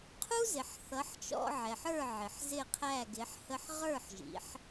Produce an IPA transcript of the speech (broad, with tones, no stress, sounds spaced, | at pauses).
qʰ u˥ z ɪ˩ ħ θ ʌ˩˥ ħ t͡ʃ ɔ̰˧ ʕ ɛ˩ ħ ə˞˥˩ ʕ ɪ˩ ħ z ɪ˥˩ qʰ æ˥˩ ɡ ɪ˩˥ ħ h ə˧ ħ ʁ ə˞˥˩ ħ ʒ ḭ˩˥ ħ